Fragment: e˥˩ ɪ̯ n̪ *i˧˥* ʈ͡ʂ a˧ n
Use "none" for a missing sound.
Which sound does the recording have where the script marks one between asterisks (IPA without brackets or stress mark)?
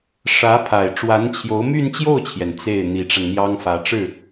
i˧˥